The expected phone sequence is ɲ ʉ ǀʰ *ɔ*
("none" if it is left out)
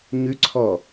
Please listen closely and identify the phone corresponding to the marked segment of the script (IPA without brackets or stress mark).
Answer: ɔ